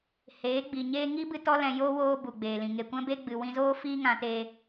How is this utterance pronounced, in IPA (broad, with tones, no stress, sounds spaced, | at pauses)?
h eː˨˦ ɡ͡b i˨ ɲ eː˦ ŋ i˦ b ɨ˧ t ɔ˦ l ɛ̃˧ j oː˦ w oː˧ b u˨ ɡ͡b eː˨ l ĩ˨ ŋ e˨ kʷ ɛ̃˦ b e˦ ɡ͡b ɨ˨ w ĩ˧ z oː˦ f iː˦ ŋ ã˧ t e˧